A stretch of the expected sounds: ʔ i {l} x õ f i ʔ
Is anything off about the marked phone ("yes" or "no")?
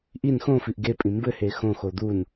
yes